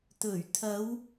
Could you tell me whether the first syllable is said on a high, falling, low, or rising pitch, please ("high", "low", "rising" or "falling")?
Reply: low